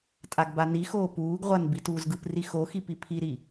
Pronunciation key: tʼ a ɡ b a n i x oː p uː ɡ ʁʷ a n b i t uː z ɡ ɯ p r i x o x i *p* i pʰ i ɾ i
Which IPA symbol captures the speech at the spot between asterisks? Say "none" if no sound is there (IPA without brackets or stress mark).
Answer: p